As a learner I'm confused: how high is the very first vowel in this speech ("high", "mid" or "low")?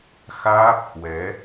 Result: low